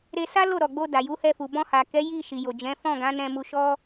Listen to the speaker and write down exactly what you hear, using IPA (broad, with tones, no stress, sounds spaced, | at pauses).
ɾ e˧ s a˦ l o˦˨ ɾ ɔ˨ ɡ͡b o˧ d a˨ j u˨˦ h ɛ˧ f u˨ b ɔ̃˧ h a˨ k ɛ˨˦ j i˦˨ ʃ i˨ j o˨ d͡ʒ ɛ̃˨˦ f ɔ̃˦˨ ɡ ã˨˦ n ɛ̃˧ m u˧ ʃ ɔ˦